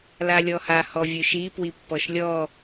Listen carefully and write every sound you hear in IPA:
l a lʲ ɔ h a h ɔ vʲ ɵ ʃ i p w i pː ɔ ʃ lʲ ɔ

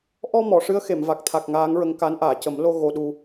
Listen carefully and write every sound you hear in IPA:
ʔ ɔ˧ m ɔ˨˩˨ ʂ ɨ˧˥ ə̯ x e˨˩˨ m v a˨˩ k̚ t̪ʰ a˨˩ k̚ ŋ aː˧˥ ŋ ɹ ə˧ ŋ k a˧˥ n ʔ aː˨˩˨ c ə˨˩˦ m l o˧ ɣ o˧ ɗ u˧

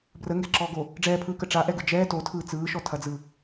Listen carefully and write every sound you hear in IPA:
b r ə ŋ ɡ ɛ ǁ ɔː ɡ o | ɖ͡ʐ ɛː pʰ ɯː k ə ʈ͡ʂ a ʔ ɛ ɡ ɯ d͡ʒ ɛː t o tʰ ɯː t͡s ɯː ʃ ɔ tʰ ɐ d͡z ɯ

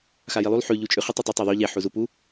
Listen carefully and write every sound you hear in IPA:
x a j i lˠ u lˠ ħ ʉ ʎ u t͡ʃʼ ʉ χ ɨ tˤ o tˤ e tˤ a ðˤ ʉ ʎ e ħ u z u p u

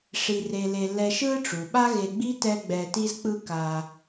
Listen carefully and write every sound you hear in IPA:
ʂ i˧ r e˧ l e˧ l ɛ˧ ʃ ɯ˥ ʈ͡ʂ u˩ ɓ a˥ ɣ e˧ ɡ͡b i˥ t ɛ˥ ɡ͡b ɛ˧ t i˥ z k͡p ɯ˥ k a˧

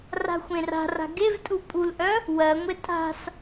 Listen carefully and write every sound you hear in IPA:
r a̤ xʷ ẽ r a̤ r a̤ ɡ e v tʼ u pʼ u l ʔ œ | w ɜ ŋʷ e tʼ a̤ s

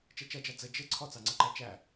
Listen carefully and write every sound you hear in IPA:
t͡ʃ ɛ t͡ʃ ʌ d͡ʒ ɑ d͡z ə d͡ʒ ɪ ǀʰ ɔ t͡s ɑ ŋ͡ǀ ʌ ǃ æ t͡ʃ æ

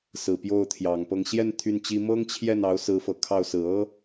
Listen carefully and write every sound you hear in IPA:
s ɹ̩˨˩ p j o˥˩ ʊ̯ t̪ʰ j ɑ˨˩ ŋ p ɤ˥˧ ŋ ɕ j ɛ˥˧ n t̪ʰ y˥˩ n t͡ɕ i˥ m ɤ˥ ŋ t͡ɕʰ j ɛ˥˩ n ɑ˧˥ ʊ̯ s ɹ̩˧˥ f ɤ˨˩ kʰ ɑ˥˩ ʊ̯ s ɹ̩˨˩ ɤ˥

